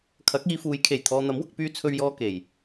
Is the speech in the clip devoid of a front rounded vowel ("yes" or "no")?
no